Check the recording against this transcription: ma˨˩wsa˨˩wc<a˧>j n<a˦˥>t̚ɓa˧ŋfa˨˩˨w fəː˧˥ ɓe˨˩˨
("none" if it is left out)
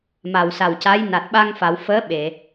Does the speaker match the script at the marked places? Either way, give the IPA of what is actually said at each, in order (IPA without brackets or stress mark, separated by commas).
a˧˥, a˨˩